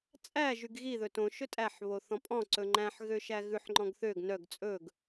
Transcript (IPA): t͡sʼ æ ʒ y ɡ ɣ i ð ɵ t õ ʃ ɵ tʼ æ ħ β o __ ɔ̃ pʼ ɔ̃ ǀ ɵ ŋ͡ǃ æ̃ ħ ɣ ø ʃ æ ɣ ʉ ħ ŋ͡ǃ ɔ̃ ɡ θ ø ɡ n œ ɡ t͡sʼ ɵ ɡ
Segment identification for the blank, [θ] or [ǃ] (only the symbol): θ